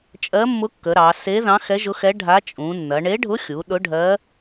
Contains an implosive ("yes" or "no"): yes